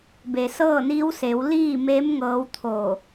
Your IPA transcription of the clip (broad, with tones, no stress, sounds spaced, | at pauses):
b e˩ s ɤː˥˨ n iː˧˥ w s e˩˧ w l iː˥˨ m e˧˥ m ŋ ɤː˧˥ w t̪ʰ oː˧˩